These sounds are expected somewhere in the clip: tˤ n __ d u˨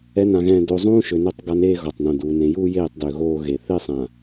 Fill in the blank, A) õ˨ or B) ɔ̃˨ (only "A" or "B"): A